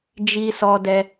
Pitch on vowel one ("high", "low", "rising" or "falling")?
high